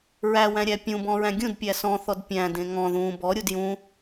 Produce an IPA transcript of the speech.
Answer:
ɹ æ w æ̃ ɾʲ æ pʲ ũ b ɔ̃ ɹ æ̃ ɡʲ ũ d pʲ æ s ɔ̃ θ ɔ d pʲ æ̃ d ẽ ŋ ɔ̃ ð ũ b ɔ ɾʲ u d j ũ

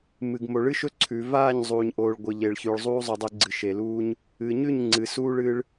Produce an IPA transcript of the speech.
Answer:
m ɨ˨ ɡ m o˨ ɭ ɨ˦ ʃ ɵ˦ ǀʰ ʉ˨ v aː˦˨ ɲ zˤ uː˨ ɲ ʔ oː˨ ɭ ɡʷ ɨ˨ ʎ e˨ ɭ ç ʉː˨ ɭ zˤ uː˦ zˤ ɵ˨ dˤ ɨ˨ ɡ͡ǀ ɨ˨ ʃ e˨ l uː˦ ɲ | ɨː˨ ɲ ʉ˦˨ ɲ ŋ͡ǀ ɨ˨ s uː˦ ɭ ɨ˦ ɭ

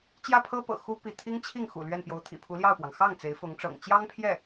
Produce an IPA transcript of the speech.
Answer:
t͡ɕ j ä˥˩ pʰ ɤ˥ p ɤ̰˨˩ x u˥ p i˥˩ t̪ʰ i˥ ŋ t͡ɕʰ i˥˩ ŋ x ṵ˨˩ l ɥ ɛ˥˩ n p j o˧˥ ʊ̯ t̪ʰ ḭ˨˩ pʰ u˧˥ l j ɑ˥˩ ʊ̯ p w ɑ˩ ŋ x ɑ˥˩ ŋ t͡s e˧˥ ɪ̯ f ʊ˧˥ ŋ ʈ͡ʂ ɤ̰˨˩ ŋ t͡ɕ j ɑ˥ ŋ pʰ j ɛ˥˩

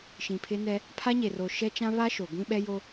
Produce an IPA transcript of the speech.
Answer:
ʃ ĩ˨ pʰ ɪ˦ n ɛ˦ | pʰ a˦ ɲ e˨ r o˨ ʃ ɛ˦ t͡ʃ ã˦ β a˦ ʃ o˨ ɡʷ ĩ˦ ɓ ɛ˦ j o˦

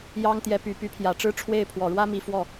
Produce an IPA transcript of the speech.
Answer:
j ɑ˥ ŋ t̪ j ɛ˧˥ p y˨˩ p y˧˥ pʰ j ä˨˩ ʈ͡ʂ ɻ̩˥ ʈ͡ʂʰ w e˥˩ ɪ̯ pʰ w ɔ˨˩ ɻ w ä˥ m i˧˥ f w ɔ˥˩

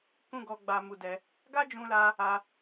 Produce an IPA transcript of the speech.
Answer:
k ũ˦ ɡ ɔ˧ ɡ͡b a˧ m u˧ d ɛ˧ | ɡ a˦ d͡ʒ ũ˧ l a˧ | a˦

